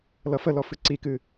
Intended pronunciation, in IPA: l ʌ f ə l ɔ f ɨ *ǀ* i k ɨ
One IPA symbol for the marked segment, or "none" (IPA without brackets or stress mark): ǀ